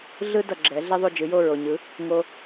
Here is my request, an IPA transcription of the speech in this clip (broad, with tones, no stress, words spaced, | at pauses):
ɮɯ˥dʌ˩ ɡ͡ǁɛ˩˥ ɮɛ˥ðˤo˥˩d͡ʒɯ˩˥jo˥˩ ɹo˩ɲɯ˩˥ | ŋo˧